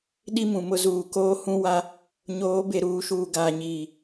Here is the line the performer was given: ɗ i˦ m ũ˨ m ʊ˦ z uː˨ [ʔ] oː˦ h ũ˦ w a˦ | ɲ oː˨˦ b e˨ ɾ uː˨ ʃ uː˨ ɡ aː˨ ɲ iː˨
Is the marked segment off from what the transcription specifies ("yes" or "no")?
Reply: yes